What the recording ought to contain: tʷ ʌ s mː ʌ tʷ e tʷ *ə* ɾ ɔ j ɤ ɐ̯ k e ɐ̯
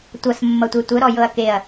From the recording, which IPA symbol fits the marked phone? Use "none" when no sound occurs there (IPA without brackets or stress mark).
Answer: ə